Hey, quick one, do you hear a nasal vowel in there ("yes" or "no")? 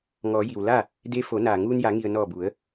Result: no